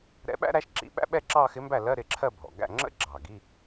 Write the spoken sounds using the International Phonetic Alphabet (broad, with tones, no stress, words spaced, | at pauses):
ɾɛ̰˧˥ɓæ̰˥ɾæ˧˥ʃǁḭ˧˥˧ ɓæ̰˥ɓɛ˥˧ ǁɑ˥˧xɪ˧˥mbæ˥˩ lɜ˧˥˧ ɾɪ˥˩ǁʰɜ˥˧bʱɔ̰˨˩ ɡæ̰˥˩ŋ͡ǁə̰˥ ɡ͡ǁɑ˨˩ ɡi˧˥˧